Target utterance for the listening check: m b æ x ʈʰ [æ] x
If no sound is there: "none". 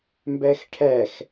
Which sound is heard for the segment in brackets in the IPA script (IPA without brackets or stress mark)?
æ